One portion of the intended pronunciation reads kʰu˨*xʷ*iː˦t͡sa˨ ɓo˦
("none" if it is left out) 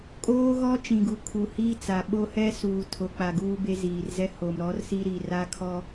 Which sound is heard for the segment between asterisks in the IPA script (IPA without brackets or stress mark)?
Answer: h